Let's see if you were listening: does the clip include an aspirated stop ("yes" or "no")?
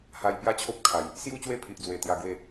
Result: yes